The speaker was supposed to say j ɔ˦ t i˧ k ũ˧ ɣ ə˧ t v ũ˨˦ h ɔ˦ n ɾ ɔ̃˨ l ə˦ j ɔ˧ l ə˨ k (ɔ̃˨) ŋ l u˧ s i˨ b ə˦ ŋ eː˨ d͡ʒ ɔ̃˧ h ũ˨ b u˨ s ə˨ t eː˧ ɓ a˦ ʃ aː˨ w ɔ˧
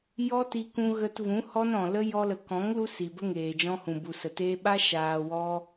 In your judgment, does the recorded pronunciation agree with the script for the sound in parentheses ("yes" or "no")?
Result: no